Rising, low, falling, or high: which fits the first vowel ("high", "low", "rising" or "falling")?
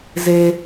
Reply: high